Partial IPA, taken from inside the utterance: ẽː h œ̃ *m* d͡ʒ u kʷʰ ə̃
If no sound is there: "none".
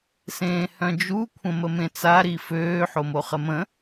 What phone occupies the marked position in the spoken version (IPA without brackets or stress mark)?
none